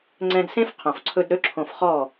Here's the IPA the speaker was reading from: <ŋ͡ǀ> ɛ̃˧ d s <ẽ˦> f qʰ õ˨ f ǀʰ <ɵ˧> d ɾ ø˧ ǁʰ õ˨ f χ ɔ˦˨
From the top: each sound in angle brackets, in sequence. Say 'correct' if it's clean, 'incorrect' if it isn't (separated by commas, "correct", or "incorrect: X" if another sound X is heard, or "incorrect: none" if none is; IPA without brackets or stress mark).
correct, correct, correct